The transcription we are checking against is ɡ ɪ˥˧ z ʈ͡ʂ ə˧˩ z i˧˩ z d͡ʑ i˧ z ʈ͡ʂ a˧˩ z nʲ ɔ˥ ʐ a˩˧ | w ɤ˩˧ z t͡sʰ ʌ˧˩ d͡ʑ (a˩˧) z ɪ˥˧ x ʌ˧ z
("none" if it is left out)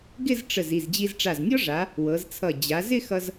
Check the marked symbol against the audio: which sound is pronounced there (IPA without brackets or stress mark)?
a˩˧